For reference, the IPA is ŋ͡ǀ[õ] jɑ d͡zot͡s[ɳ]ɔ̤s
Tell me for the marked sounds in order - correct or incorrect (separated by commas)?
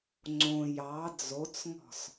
correct, incorrect